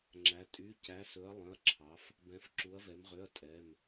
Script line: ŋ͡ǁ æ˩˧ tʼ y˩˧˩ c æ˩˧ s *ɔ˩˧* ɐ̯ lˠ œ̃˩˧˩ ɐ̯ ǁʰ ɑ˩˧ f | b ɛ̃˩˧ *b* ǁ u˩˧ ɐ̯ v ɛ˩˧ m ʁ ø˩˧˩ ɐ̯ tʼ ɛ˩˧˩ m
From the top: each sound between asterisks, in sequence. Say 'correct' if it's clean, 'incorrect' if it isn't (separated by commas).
incorrect, incorrect